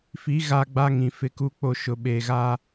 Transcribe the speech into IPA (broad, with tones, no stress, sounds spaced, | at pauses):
f i˨˦ ɣ a˦ ɡ͡b a˦ ŋ ĩ˨ f ɪ˨ k u˨ k͡p o˨ ʃ ʊ˨ ɓ eː˨ ɣ a˦